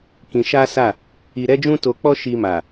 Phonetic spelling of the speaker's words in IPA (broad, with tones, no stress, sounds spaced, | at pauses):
k ĩ˧ ʃ a˦ s a˦˨ | i˧ ɾ ɛ˦ d͡ʒ ũ˦ t o˧ k͡p ɔ˦ ʃ i˧ m a˨